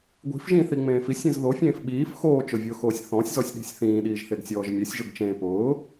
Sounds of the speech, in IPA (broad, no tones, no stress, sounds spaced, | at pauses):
ɡʷ i̤ f ʒ ĩ θ i ŋ͡m ẽː f i sʲ ĩ z ð o fʲ ẽː f ɓ iː f x oː t͡ʃ ʊ vʲ ʊː x oː sʲ θ ɔ̃ sʲ z ɔ sʲ ɗ i̤ sʲ θ ĩː ɗ iː ʒ θ e ɡ sʲ ɔː ʒ mʲ e sʲ ʒ ʊ ɡ t͡ʃ ẽː p ʊː